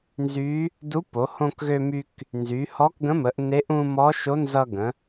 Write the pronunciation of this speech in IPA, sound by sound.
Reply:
nzy˧˥ | du˧˥po˩˧ hõ˧kɣø˧my˧k | nzy˩˧hɔ˧˥kɡə̃˧˥mə˩˧ʔ ne˧˥ʔ ũ˧ mɔ˧˥ʃo˧˥ nzʌ˧ɡə̃˩˧

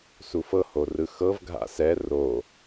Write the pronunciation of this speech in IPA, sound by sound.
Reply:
sufɤho rɯxɤv ɡʱa̰sɛ ro

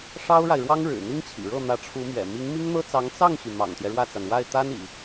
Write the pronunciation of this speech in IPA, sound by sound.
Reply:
ʂɑ˥ʊ̯ɻa˨ɪ̯ɻwɑ˥ŋɻɻ̩˨˩ n̪i˥ŋt͡ɕʰḭ˨˩ɻɤ˥˩ n̪ä˧˥ʈ͡ʂʰu˧˥mɥɛ̰˨˩ mi˧˥ŋmi˥ŋn̪ɤ˥t͡sɑ˧˥ŋ t͡sɑ˥˩ŋɕy˩ mɑ̰˨˩ŋt̪jɛ˦ɻwä˥˩t͡sa˩n wa˥˩ɪ̯t̪a˥n ḭ˨˩˦

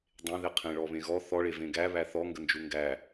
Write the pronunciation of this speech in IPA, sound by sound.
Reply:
dˤẽðe qʰẽɭɔβẽɣɔ θɔɭe vẽɡæ βæθɔ ŋɡənd͡ʒuŋɡæ

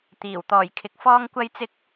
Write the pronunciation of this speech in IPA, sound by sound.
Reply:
t̪iː˨˩w t̪ɔː˨˩jkʰɪ˨k̚ fɔː˥ŋkʷɐ˥jt͡sɪ˥k̚

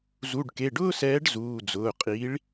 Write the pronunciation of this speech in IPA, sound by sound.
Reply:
zu˩˧˩ɖke˩˧˩ɖʊː˥sɛː˨˥ɖ zuː˩˧˩d͡zʊː˩˧˩qʼi˨˥ɭ

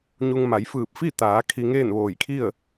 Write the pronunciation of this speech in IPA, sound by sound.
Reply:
ɲu˧ŋma˩˧j fɯː˧˩p̚fi˥˨t̪aː˩˧ kʰi˧ŋeː˥˨nʋoː˧˩jkʰi˥˨ə̯

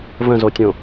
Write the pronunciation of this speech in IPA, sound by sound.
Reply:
və̃zotʲõ

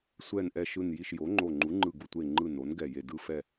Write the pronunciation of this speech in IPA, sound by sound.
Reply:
sʷɛ˧˩nʔɛ˧˩ ʃɯ˧˩nji˧˩ʃ jo˩˥ŋ͡ǃo˧˩ŋ͡ǃu˩˥ ŋ͡ǃɯ˧˩ɡu˧˩tʷe˧˩ŋ͡ǃɯ˧˩ no˩˥nɡɛ˧˩je˧˩ dɯ˧˩fɛ˧˩

